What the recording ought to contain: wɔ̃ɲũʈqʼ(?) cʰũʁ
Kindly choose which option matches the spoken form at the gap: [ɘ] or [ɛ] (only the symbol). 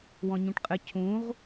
ɘ